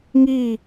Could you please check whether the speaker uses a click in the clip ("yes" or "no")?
no